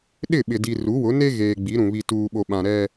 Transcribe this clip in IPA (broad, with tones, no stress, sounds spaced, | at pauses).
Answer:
ɗ ɪ˦˨ ɓ ɪ˨ d i˨ r u˨˦ w ʊ˨˦ n e˦ ɣ eː˨ ɡ͡b i˨˦ ɾ ũ˨ β i˨ t uː˨ ɓ o˨ ɓ ã˨ ɾ ɛ˦